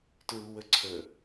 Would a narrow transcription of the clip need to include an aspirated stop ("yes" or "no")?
yes